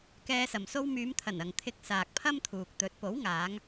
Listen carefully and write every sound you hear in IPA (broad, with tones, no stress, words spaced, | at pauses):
kɛː˧sɐ˨m so˧wmyː˨˧mt̪ʰɐ˨˩n ɐ˨ŋt̪ʰɪ˧k̚saː˨k̚pʰɐ˥m t̪ʰuː˨k̚t̪ɵ˨˥t̚ po˨˥wŋaː˨˧ŋ